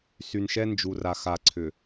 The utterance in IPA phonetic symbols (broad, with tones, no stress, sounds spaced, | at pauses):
s y˨ n ʃ ɛ˦ n d͡ʒ u˨ r a˨ x a˨ ǀʰ ʏ˨